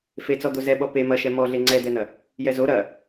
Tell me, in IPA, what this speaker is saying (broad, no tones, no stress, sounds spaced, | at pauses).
f e t͡s ɔ d̪ o z ɛ ɓ ɔ p e m ɐ ʃ ɛ m ɔ ɮ e ŋ͡ǀ ɛ d̪ ɛ n̪ ɐ | j ɛ z o ɾ ɐ